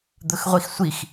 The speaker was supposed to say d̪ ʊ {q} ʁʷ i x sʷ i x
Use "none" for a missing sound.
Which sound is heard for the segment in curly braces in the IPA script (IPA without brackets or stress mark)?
x